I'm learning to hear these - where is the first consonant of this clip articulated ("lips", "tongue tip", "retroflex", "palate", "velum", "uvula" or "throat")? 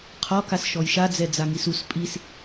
uvula